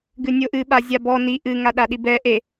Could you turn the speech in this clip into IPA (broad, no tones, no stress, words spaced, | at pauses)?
ɡɨnʲoʔɨ ɓazʲabɔ ni ʔɨ ŋaɗaɗibɛ ʔe